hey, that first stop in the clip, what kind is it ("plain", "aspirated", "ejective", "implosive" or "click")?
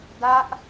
plain